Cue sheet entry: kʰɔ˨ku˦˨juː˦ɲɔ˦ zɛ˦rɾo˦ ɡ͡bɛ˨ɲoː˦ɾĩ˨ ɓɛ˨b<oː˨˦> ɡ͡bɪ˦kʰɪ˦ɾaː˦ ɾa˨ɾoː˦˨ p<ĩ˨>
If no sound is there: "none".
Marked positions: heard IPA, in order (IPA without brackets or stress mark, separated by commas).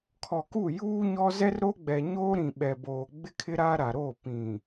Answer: oː˨, ĩ˨